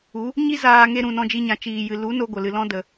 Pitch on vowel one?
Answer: rising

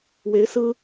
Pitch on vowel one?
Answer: rising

